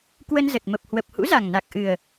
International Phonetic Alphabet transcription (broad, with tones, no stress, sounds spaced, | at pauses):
k w ə˧ n z ə˨˩ t̚ m ə˨˩ p̚ h w ə˨˩ p̚ h ṵ˧˥ z a˨˩ ŋ n a˨˩ k̚ ʔ ɨ˨˩ ə̯